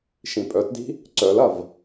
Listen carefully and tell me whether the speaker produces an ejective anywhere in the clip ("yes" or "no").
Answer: yes